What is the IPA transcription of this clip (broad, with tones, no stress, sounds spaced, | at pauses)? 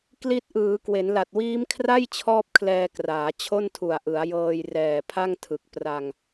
k l i˦˥ t̚ ʔ ɯː˩˦ k w e˩˦ n l a˨˩ t̚ w iː˦˥ m kʰ r a˥˩ j t͡ɕʰ ɔː˥˩ p̚ kʰ l ɛː˧ k r aː˩˦ t͡ɕʰ o˥˩ n tʰ u˨˩ a̯ ʔ ɯ˩˦ a̯ j ɤː˧ j r ɛː˨˩ pʰ a˥˩ ŋ tʰ ɯ˨˩ k̚ p r a˧ ŋ